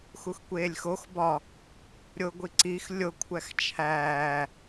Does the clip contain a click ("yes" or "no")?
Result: yes